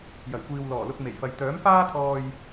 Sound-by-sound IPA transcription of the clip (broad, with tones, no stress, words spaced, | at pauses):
jɐ˨˩jkʷiː˨w lɔː˨˩lʊ˧k̚ me˨˩jfɐ˨j t̪œː˨˥mfaː˥t̪ʰɔː˧j